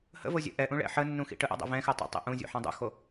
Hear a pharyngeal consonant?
yes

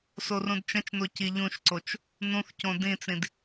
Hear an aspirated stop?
no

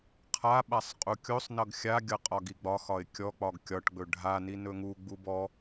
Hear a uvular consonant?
yes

